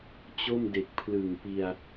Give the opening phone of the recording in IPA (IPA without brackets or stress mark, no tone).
t͡ɕ